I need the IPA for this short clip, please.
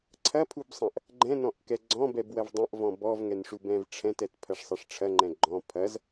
ǀʰ ɐ pʰ u b sˤ ɐ̃ ʔ | ɡ͡ǃ ɛ̃ n ɔ̃ ʔ k ɛ ɡ͡ǀ ɔ̃ b ɛ b w ɐ v dˤ ɐ̃ ʔ v ɔ̃ b ɔ v ŋ ɛ n ʂ u b ɛ̃ v ʈ͡ʂʰ ɛ̃ t ɛ t pʰ ɐ ʂ sˤ ɐ ʂ ʈ͡ʂʰ ɐ ŋ͡ǃ ɛ̃ ɡ͡ǃ ɔ̃ pʰ ɐ z

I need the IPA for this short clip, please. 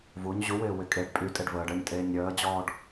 v u ɲ ʑ u w ɪː w ɪ kʼ e ɖ pʼ y tʼ e ɖ v əː ɖ ə ɲ tʼ eː ɲ ɾʲ əː d͡ʑ ɔː ɖ

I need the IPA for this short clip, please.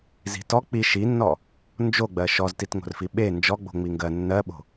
z i̤ t ɔ k͡p i ʃ i nː ɔ | n d͡ʒ o ɡ͡b ɜ ʃ ɔ z t i t ŋ o̤ r f i ɓ e n d͡ʒ ɔ ɡ͡b o̤ ŋ͡m i ŋ ɡ ɜ nː ɜ ɓ o̤

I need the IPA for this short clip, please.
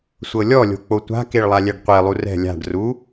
sʷ ɤ lʲ ɔ lʲ o̤ k͡p o tʷ a̤ k e ɭ lˠ a lʲ ɛ ɖ qʷ e lˠ u r ɛ̤ lʲ a̤ ɖ r u

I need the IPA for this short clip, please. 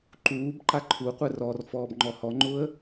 ǃ uː b ǃ a ǃʰ u qʷ ɛ r ɔ r f ɔː b ŋ͡ǃ ɔ h ɔ ŋ͡ǃ ʊ ə̯

